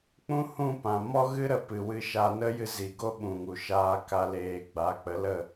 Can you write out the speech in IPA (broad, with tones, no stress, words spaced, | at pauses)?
k͡pũ˦hũ˦˨pã˨ mɔ˦ɣɨ˦ ɾə˧pɨ˨ wɨ˧ ʃa˧nə˦jɨ˧zi˨ ɡo˦ɓũ˨ŋu˨ ʃaː˧ka˧ leː˨ ɡ͡ba˨˦k͡pə˨˦lə˦˨